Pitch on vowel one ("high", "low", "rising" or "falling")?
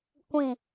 falling